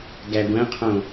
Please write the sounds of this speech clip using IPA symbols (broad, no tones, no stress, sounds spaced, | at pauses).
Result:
ɡ æ ɡʷ æ̃ qʰ õ